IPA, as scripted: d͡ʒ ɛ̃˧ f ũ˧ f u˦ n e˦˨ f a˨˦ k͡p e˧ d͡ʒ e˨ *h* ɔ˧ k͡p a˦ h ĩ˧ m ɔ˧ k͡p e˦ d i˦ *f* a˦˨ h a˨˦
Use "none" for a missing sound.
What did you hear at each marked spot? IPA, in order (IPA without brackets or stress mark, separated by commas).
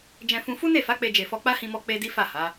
f, f